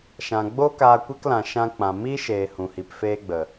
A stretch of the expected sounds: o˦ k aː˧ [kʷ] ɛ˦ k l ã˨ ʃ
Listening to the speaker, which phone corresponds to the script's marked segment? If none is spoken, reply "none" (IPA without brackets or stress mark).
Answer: kʷ